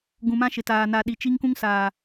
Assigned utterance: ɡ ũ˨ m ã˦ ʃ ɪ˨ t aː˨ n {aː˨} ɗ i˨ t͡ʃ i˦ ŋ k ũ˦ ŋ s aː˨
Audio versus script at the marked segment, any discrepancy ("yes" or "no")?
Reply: yes